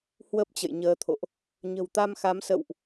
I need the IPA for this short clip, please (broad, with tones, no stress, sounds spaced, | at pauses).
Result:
h w ə˦˥ p̚ t͡ɕ ə̰˧˨ j ɲ əː˨˦ t̪ʰ o̰˧˨ ʔ | ɲ ə̤˨˩ w t̪ a˧ m x a˨˦ m s ə̰˧˨ w ʔ